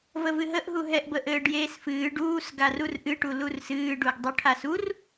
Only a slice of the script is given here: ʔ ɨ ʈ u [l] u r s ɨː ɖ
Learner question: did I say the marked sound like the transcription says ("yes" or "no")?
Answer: yes